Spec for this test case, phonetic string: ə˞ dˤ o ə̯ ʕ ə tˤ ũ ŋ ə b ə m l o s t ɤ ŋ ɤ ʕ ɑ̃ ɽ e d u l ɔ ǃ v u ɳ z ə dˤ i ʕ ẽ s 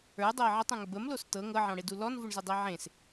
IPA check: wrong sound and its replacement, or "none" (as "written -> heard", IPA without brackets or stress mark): ǃ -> n